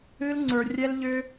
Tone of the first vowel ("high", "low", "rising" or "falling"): high